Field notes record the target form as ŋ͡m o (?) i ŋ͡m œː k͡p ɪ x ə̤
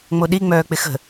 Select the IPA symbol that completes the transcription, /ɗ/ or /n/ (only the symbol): ɗ